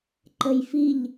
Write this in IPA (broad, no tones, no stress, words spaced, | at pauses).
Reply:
ǃəjfiʎ